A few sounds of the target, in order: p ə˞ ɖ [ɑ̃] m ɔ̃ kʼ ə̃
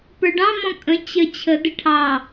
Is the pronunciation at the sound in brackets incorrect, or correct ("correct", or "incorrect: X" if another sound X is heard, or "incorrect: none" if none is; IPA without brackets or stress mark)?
correct